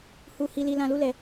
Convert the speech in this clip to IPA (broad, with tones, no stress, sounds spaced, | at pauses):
h u˦ h i˦ l i˦ l ã˦ l u˦ l ɛ˧